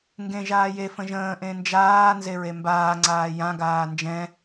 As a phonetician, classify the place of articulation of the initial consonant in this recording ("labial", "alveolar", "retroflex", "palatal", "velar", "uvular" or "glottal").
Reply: velar